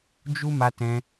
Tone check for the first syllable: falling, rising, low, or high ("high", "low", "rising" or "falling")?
high